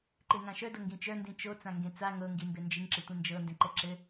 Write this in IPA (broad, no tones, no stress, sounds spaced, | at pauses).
ǃ e ŋ ã ʃ œ d ɤ ŋ ɡ ĩ t͡ʃ œ n d ĩ t͡ʃ o t͡s ã ŋ ɡ ẽ t͡s a ŋ ɤ ŋ ɡ i m b e n d͡ʒ i ŋ ǁ ɘ tʷ ĩ n d͡ʒ ɤ n d ẽ ǃ ɛ ǁ ɘ